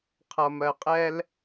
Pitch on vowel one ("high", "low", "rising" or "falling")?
low